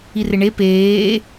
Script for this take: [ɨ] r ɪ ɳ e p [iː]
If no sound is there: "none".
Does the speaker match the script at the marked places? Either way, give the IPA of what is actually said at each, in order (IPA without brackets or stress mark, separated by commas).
i, eː